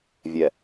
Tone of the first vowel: low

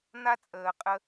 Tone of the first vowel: high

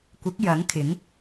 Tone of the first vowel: rising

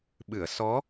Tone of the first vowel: low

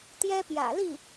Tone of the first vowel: high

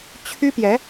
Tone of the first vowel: high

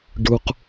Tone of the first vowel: low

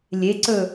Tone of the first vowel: rising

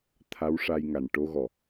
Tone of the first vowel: rising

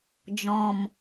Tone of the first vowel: low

